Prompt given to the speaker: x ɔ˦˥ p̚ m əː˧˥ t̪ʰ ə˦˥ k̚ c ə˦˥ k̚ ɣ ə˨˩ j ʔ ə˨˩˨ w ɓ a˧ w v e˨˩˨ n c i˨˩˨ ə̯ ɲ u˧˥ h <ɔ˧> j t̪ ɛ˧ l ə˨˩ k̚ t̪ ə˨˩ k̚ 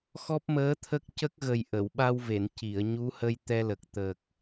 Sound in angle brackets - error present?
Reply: yes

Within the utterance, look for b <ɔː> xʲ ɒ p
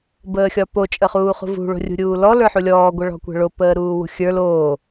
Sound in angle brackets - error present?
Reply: yes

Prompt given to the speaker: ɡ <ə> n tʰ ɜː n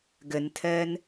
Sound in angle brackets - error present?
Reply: no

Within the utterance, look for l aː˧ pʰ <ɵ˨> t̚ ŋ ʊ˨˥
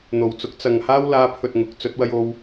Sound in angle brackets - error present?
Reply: no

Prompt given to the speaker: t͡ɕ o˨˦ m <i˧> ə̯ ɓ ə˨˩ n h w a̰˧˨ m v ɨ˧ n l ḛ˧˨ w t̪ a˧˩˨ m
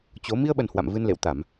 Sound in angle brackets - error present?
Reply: no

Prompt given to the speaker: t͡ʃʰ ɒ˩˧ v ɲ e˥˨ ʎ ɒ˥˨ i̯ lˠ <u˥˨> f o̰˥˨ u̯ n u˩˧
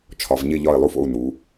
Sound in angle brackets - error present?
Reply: no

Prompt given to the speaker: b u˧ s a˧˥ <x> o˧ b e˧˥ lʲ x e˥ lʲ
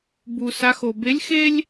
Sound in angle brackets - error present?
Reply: no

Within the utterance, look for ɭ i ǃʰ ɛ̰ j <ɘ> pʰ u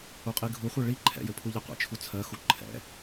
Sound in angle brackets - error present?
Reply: no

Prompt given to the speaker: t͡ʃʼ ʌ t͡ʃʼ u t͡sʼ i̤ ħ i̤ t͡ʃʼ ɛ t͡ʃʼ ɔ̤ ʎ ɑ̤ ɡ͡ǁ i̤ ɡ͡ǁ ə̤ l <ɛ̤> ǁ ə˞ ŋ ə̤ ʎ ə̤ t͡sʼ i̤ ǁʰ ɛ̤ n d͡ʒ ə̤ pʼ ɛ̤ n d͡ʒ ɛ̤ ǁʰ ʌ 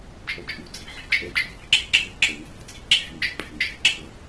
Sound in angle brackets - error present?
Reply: yes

